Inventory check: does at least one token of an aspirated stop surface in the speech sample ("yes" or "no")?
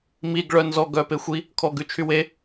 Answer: yes